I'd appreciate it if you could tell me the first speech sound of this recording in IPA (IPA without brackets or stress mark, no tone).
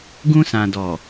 ɡ